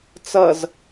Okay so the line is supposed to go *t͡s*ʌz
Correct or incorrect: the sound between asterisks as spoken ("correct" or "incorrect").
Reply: correct